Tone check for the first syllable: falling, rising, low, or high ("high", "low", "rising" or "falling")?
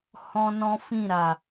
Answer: high